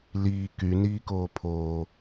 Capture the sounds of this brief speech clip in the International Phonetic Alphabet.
l iː k y n iː k oː pʰ oː

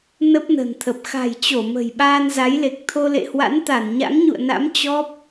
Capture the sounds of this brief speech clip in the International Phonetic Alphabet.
n ə˦˥ p̚ n ə̤˨˩ n t̪ʰ ə˨˩ p̚ x a̤˨˩ j t͡ɕ o˧˩ m ə̤˨˩ j ɓ aː˧ n z a˨˦ j l e˨˩ k̚ t̪ʰ o˧ l ḛ˧˨ h w a̰˧˥ n t̪ a˧˩ n ɲ a̰˧˥ ŋ ɲ ṵ˧˨ ə̯ n a̰˧˥ m t͡ɕ ɔ˦˥ p̚

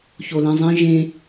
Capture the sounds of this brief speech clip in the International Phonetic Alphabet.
ç o l ĩ zˤ ĩ ʒ ẽ

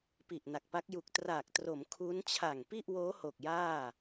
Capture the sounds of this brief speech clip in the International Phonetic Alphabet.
p i˨˩ ʔ n a˨˩ k̚ p a˦˥ k̚ j u˨˩ k̚ t r aː˨˩ k̚ t r o˩˦ m kʰ u˦˥ n t͡ɕʰ a˨˩ ŋ p i˥˩ ʔ w oː˦˥ h o˨˩ k̚ j aː˥˩

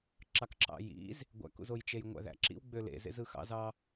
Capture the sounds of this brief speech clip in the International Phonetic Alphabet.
ǁ ɑ k ǁ ɑ̰ j ḭ z | ɡʷ æ̰ k ṵ z o j t͡ʃ e j ŋʷ æ̰ ð æ̰ ǁ ḭ w ɡ͡b ø l ḛ z ḛ z ɯ x ɑ̰ z ɑ

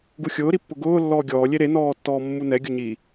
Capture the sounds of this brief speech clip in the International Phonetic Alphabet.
ɡ u xʲ ʊː ɾ i pː ʊ ɡ ʊː lː ɔː ɡʲ ɔː lʲ e ɾ e n ɔː tː ɔː mː u n ɛ ɡʲ ʊ ɲ i

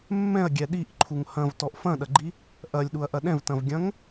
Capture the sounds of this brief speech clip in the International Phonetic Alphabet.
mː ɛ̃ ɐ̯ ɡʲ ɛ ɗ i ʔ ǃʰ u ŋ h ɐ̃ v t ɔ ʔ f ɐ̃ ɗ ɐ ɡ͡ǃ i | ʔ ɐ lʲ ɗ u ɐ̯ ʔ ɐ ɗ ɛ̃ v t ɐ̃ v ɡʲ ɐ̃ ŋ

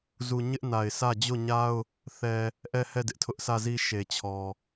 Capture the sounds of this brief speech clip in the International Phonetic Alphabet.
z u˨ ɲ ɪ˦ ʔ n a˨ ɪ̯ s ä˦˨ d͡ʑ o˦˨ ɲ a˦ ʊ̯ | θ ɛ˨ | ʔ ɛ˦˨ h ɛ˦˨ d ɪ˦ ʔ tʰ ʊ˦ ʔ sʰ ä˦˨ z i˦ ʃ e˨ t͡ɕʰ ɔ˨

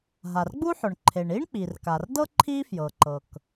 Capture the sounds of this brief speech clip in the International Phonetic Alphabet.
ɦ a˩ r ɡ͡b u˥ ħ ʊ˩ ɳ ǃʰ e˩ ɳ i˥ ɳ k͡p i˩ r k a˩ r d ɤ˥ ǃʰ i˥ f j ɤ˩ ǃ ɤ˩ k

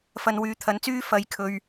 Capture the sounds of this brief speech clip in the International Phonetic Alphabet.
f ɐ˨ n w yː˨ t̪ʰ ɐ˨˥ n t͡s yː˥ f ɐ˨ j kʰ ɵ˨ ɥ

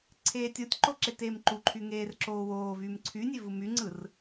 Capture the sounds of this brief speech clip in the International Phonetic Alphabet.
ǀʰ eː tʲ o tʲ ǃ o ǁ e t eː m ǃ u ǃʰ y ŋ eː r ǁ oː w oː v yː m ǀʰ y nʲ e v ɯ m y ŋ͡ǀ ɯ r

